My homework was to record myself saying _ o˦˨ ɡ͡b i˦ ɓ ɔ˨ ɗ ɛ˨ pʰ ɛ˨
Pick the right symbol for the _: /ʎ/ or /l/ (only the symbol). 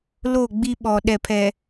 l